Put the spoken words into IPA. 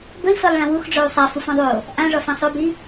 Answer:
b ə i̯ f ɜ lˠ ɭ ã w u x ɖ͡ʐ o u̯ sˤ a f u f ɔ̃ ðˤ o | ʔ ã ʐ ɒ f ã sˤ o b i

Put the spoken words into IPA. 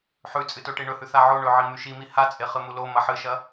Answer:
ħ ʉ t͡sʼ ɨ t o ʈ i ɳ ɵ h ʉ θ a ʕ o ɳ ɵ ʕ i m ʉ ʃ i m i h a t͡sʼ e χ ɨ m u l o m ɐ ħ ɨ ʃ ɐ

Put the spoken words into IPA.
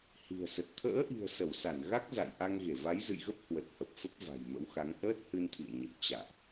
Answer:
h i̤˨˩ ə̯ s ə˨˩ t̚ t̪ʰ ə̰ː˧˥ ʔ i̤˨˩ ə̯ s ə˧˩ w s a˧˩ n ɣ a˦˥ k̚ z a̰˧˨ j ʔ a˧ ŋ ɣ e˧˩ v a˨˦ j z ɨ̰˧˨ j ɣ ə˦˥ p̚ h w ə˨˩ t̚ h ə˨˩ p̚ f ə˦˥ p̚ v a̤˨˩ j m ə̰˧˥ w x a˨˦ ŋ ʔ əː˦˥ t̚ h ɨ˧ n t̪ʰ ḭ˧˨ ə̯ ɲ ə˨˩ p̚ t͡ɕ a̰ː˧˨ ʔ

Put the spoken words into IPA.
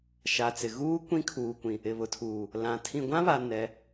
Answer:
ʃ a˨ t͡s ɪ˨ ɣ uː˦ kʷ ĩ˦ kʰ uː˨ kʷ ĩ˨ | ɪ˨ β ʊ˨ tʰ uː˨ | l ã˨ tʰ ĩ˨ ɡʷ ã˦ β a˨ n ɛ˨˦

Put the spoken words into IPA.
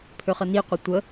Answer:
pʰ ø χ ə n i qʷ i tʷ ə

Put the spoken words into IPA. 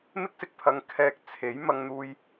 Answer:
m ɪ˥ k̚ s ɪ˧ k̚ pʰ ɐ˨˧ ŋ kʰ ɛː˧ k̚ t͡sʰ e˨˥ j m ɐ˧ ŋ n̪ uː˧ j

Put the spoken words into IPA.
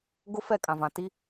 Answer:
ɡ ʊ˦ f ɛ˦˨ kʼ ã˨ v ã˨ t i˦

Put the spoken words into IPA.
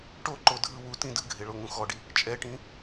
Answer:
ʈ o ǃ o dʱ ɯ w u t ĩ d ɯ ɡʱ e ɭ o ŋ ũ x ɔ ɖ i | t͡ʃʼ ɛ ʈ ĩ

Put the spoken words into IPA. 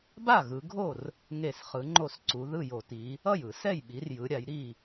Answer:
b a˥˩ ɣ ɯ˩˧ ɡʱ o˥˩ r | ŋ e˧˩˧ s χ ɯ˩˧ ŋ͡ǃ o˥˩ s ǀ u˩˧ ð ɯ˥˩ j o˧˩˧ t i˩˧ | ʌ˥˩ j ɯ˧˩˧ s ɛ˥˩ j ɓ i˩˧ r j ɯ˩˧ ɾʲ a˩˧ j ɾ i˥˩

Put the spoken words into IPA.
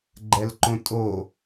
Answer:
ɡ͡ǃ ɛ l ǃ õ tʼ o

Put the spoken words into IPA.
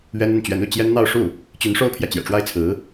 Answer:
ɥ ɛ˥ n ə˥˩ n t͡ɕ ɥ ɛ˧˥ n u˥˩ t͡ɕ j ɛ˥ n n̪ ɑ˥˧ ʊ̯ ʂ u˥˩ | t͡ɕ y˧˥ n ʂ o˥ ʊ̯ pʰ j ä˨ t͡ɕ j ɛ̰˨˩ ʈ͡ʂ w a˥˩ ɪ̯ t͡sʰ ɹ̩˧˥

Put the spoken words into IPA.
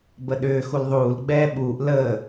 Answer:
b ə ɗ ʏː x u l ðˤ uː l ɡ͡b ɛː ɓ uː ʔ l əː

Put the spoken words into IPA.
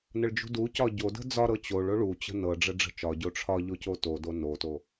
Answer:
n ə ɭ d͡ʒ ṳ d u c ɒ ɟ o d ə̤ d͡z ɒ ɾ ɤ t͡ɕ o ɭ o ɭ u t͡ɕ ə̤ n ɤ ɖ͡ʐ ə ɖ͡ʐ ə̤ t͡ʃ ɒ ɟ o ʈ͡ʂʰ ɒ ʎ o c o t o d o n o t o

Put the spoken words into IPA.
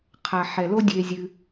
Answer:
qʰ a˩ ħ ɛ˩ l o˥ dʲ e˨ zʲ ɨ˩

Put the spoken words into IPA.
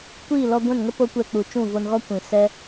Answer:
kʷ iː˦˨ l ɔ˧ ɡʷ ɛ̃˦˨ n ŋ ə˦ p o˦ kʷ ɛ˧ k͡p u˨ t͡ʃ ũ˦˨ v o˧ n ɣ ɔ˦ kʷ ĩ˨ s ɛ˦

